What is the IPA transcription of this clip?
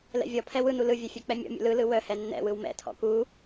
l ɛ̰ vʲ ɔ pʰ ɛ w ɯ n u l ɯ vʲ œ fʲ œ k͡p ɛ mʲ ɔ̰ mʲ ṵ l ɯ l ɯ w œ h ɛ nː ɛ̰ w ɯ w m ɛ̰ tʰ ɔ̰ k u

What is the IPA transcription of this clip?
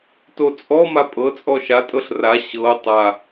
t o t͡sʼ ɔ m a pʼ ɤ t͡sʼ ɔ ʃ a tʼ ɤ ɬ r a ɕ ɤ tˤ a

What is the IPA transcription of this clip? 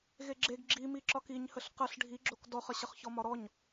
ɣ e ɡ͡ǁ e ɡ ɡ͡ǁ i m i ǁ ɒ k i ɲ h ə ɬ q ə ɬ ɖʱ i ɡ͡ǁ o k d ɔ χ ə ɕ ə χ ç ɔ m ɒ ɾ ɔ ɲ

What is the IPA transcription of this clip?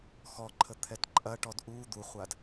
x ɔ ǃʰ ə t̪ʰ ɛ t ǃʼ ɐ ʈ ɔ d ʔ u d̪ u χʷ a d

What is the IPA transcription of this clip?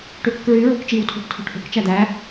ʈ ø k ɯ k ɹ y ɹ o k t͡ʃ i w tʰ o̤ ʈ tʰ o̤ ʈ ʔ o̤ k t͡ʃ æ d̪ æ

